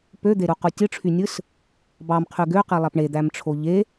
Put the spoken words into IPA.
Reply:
p ø d̪ e ɾ u q u tʲ ɯ ʈ͡ʂʰ y nʲ ɯ s | b ɑ m qʰ y ɡ ø q i lˠ æ p ɳ e d̪ æ m ʈ͡ʂʰ o ʎ e

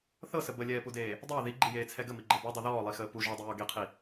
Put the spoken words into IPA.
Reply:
θ ɤ s ə b ə lʲ ɛː p u d eː | dˤ əː ð i ɡ͡ǃ i j eː t͡sʰ ɛ ɡ ə m i ɡ͡ǃ ɤ b ɔ dˤ i ð ɔː lˠ i x əː p u ʒ ɔ dˤ i j ɔ ɡ e qʰ i

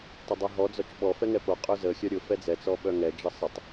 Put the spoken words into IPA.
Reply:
tˤ ə dˤ ɛ ɦ ɔ d͡z ɔ t͡ʃ ɓ ɔ f ɛ ŋ ɛ p o qʼ œ z ə xʲ œ ɾʲ ʊ f ɛ d͡z ɛ t͡s ɔ ɓ œ ŋ ɛ d͡ʒ ə sˤ ə tˤ

